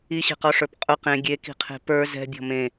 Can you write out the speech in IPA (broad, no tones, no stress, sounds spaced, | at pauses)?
i ɕ e̤ q ɔ ʂ ə˞ p qʼ ʊ q ẽ ɡʲ e k i̤ qʰ e̤ p ə˞ z ɛ̤ bʲ ɔ̤ m ẽ